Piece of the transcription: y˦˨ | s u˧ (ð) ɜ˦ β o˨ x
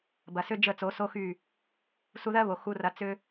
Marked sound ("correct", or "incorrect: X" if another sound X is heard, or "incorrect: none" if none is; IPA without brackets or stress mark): correct